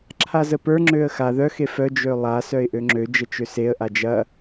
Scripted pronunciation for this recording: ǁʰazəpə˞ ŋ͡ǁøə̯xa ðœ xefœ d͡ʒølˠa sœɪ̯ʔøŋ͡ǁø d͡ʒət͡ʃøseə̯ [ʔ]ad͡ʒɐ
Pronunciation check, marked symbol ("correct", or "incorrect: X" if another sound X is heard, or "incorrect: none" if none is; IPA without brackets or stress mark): correct